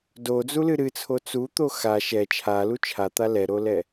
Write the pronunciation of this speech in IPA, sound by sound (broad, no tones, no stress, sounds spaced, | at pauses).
d o d͡z u l ɨ ɾ ɨ t͡sʰ o t͡s u t̪ o x a ʃ ɛ t͡ʃʰ a l u t͡ʃʰ a t̪ a l ɛ ɾ o l ɛ